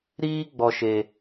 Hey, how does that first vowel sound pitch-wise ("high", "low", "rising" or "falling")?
high